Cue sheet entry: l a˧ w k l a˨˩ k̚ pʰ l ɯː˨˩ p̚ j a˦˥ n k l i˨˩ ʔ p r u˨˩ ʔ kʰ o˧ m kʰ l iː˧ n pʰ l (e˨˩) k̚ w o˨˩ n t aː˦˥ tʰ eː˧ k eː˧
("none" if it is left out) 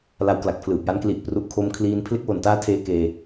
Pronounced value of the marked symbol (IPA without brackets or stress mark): e˦˥